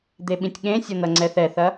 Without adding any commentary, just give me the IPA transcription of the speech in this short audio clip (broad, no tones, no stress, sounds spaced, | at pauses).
d̪ e ɓ ĩ tʲ ɠ ẽ sʲ ʌ n̪ ɐ ŋ͡ǀ ɛ θ ɛ θ ɐ